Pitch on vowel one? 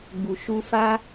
low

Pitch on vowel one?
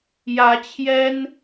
rising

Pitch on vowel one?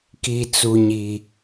low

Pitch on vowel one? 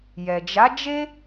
low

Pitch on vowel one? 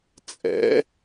rising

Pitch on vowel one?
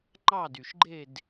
falling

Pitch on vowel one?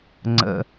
low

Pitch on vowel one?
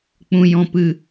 low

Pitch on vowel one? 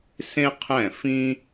high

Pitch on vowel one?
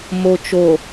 low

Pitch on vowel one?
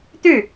falling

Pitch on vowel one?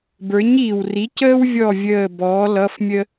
rising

